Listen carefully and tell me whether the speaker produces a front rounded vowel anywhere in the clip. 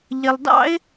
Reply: no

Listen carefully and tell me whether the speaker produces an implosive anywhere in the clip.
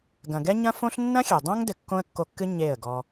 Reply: no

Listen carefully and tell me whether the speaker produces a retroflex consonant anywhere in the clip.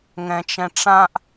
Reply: yes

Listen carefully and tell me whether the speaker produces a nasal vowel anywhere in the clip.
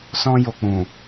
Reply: yes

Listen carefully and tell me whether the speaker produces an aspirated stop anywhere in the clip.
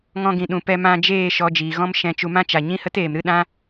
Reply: no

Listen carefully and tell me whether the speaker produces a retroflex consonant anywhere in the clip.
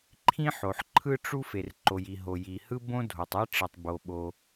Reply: yes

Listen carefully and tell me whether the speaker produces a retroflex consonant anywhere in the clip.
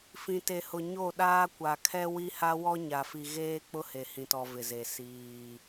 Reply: no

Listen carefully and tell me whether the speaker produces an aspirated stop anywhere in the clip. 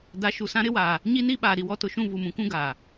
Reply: no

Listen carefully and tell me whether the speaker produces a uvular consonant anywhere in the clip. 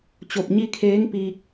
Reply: no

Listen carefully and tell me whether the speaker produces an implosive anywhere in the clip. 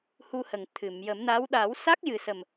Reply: yes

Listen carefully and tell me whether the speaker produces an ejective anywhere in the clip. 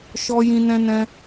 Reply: no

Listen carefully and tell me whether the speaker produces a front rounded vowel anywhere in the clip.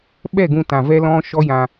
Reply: no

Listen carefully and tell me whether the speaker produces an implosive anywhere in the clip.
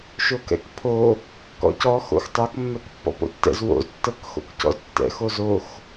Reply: no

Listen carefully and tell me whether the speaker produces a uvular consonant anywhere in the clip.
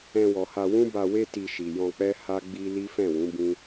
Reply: no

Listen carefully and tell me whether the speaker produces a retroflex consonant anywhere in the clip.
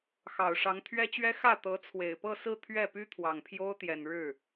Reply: yes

